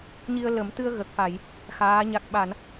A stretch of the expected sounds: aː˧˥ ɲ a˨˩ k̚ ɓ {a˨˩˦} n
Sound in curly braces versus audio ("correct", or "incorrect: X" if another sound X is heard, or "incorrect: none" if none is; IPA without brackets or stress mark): incorrect: a˨˩˨